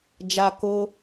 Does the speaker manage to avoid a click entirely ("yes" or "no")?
yes